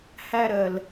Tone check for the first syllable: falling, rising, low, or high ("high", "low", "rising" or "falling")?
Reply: high